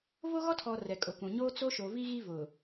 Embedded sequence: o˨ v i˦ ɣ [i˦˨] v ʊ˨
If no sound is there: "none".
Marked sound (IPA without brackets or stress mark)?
i˦